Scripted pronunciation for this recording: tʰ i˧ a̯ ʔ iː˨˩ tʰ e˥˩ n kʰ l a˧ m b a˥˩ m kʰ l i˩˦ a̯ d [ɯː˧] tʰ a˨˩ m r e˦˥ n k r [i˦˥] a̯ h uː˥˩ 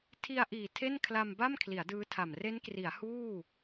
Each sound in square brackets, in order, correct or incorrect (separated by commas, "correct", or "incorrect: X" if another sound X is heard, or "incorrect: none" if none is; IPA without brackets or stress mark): incorrect: ɯː˦˥, incorrect: i˩˦